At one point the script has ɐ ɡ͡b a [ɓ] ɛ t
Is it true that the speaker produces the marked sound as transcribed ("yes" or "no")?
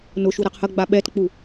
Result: yes